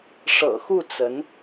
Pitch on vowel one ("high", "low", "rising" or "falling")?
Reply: low